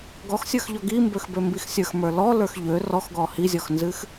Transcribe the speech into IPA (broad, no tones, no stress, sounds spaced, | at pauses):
ɡ ɔ x sʲ ə˞ x ʎ ɔ ɡ i m b ø x b ø m b i x sʲ ə˞ x m ə˞ l ɔ l ə˞ x ʎ ø r ɔ x ɡ ɔ h i zʲ ɔ x n z ɨ x